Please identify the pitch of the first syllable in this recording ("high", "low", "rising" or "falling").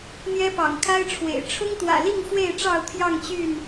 high